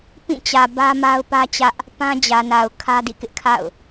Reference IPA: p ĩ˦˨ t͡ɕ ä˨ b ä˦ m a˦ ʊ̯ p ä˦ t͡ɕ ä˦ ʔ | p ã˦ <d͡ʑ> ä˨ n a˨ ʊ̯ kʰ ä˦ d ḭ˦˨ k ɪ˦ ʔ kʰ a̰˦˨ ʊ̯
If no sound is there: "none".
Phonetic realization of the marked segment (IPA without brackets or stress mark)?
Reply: d͡ʑ